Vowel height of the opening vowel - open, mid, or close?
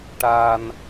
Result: open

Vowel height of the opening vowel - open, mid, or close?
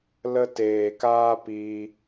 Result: mid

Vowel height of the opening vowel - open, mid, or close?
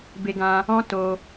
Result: mid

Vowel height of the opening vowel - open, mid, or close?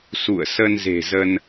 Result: close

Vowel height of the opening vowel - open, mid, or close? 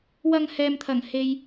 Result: open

